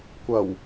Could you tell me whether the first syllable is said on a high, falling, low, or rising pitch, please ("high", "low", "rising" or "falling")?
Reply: low